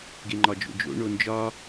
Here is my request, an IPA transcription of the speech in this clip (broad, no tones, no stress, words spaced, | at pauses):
ɡeŋ͡ǃɒd͡ʒo̰d͡ʒo̰ ɳond͡ʒɒ